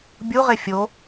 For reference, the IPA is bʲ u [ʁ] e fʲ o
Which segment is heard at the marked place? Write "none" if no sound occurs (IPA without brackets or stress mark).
ʁ